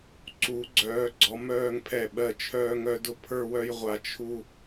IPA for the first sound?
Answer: ǀ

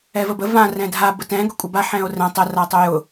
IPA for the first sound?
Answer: ɛ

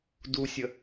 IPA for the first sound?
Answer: d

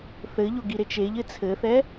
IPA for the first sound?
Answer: θ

